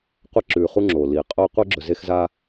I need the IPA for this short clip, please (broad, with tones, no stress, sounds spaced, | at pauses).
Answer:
qʷ ɐ˦ ǁ ʉ˨ χ u˦ ŋ͡ǁ o˩ l i˩ qʼ o˦ qʷ ɨ˦ ɡ͡ǁ ɵ˨ z e˦ x z a˦